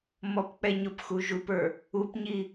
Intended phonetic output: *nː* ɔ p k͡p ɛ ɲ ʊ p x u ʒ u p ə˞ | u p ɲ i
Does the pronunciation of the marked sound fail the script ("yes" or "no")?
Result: yes